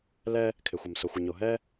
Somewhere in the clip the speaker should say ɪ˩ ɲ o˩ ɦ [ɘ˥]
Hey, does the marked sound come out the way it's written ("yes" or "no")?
no